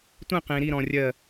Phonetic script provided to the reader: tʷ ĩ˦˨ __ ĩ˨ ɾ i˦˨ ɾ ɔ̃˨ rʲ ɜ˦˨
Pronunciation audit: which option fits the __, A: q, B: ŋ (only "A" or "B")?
A